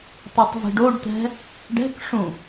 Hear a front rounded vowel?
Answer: no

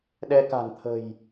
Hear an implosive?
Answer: yes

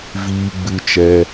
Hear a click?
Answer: no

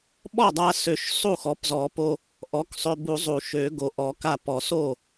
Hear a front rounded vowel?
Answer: yes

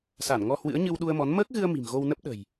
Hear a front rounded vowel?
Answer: no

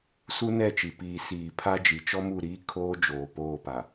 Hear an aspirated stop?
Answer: yes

